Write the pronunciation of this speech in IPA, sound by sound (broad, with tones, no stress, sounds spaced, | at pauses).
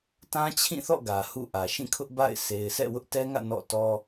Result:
t ã˦ t͡ɕʰ ĩ˦˨ θ ɔ̰˦˨ ɡ ä˨ h ṵ˦˨ ʔ ä˨ ʃ ĩ˦˨ kʰ ʊ˦ ʔ b a̰˦˨ ɪ̯ s e˨ ɪ̯ sʰ ɛ̰˦˨ w ʊ˦ ʔ t ɛ˦ ŋ ä̰˦˨ n ɔ̰˦˨ t ɔ˦